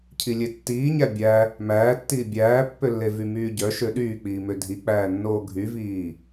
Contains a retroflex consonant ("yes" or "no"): no